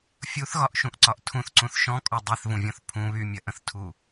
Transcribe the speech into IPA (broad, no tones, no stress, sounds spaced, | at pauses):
fʲ u θ ɣ ɒ ʔ ʃ ũ ʔ ǀ ɒ ʔ tʰ ũ θ ǀ ũ θ ʃ ɔ̃ kʼ ɔ dˤ e θ v ũ vʲ ɔ̃ θ pʰ ũ β y mʲ ɐ ʔ ə̃ θ tʰ u